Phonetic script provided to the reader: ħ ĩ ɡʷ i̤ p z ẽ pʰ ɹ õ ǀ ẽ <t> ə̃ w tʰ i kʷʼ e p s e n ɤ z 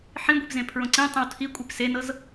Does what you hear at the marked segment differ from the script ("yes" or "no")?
yes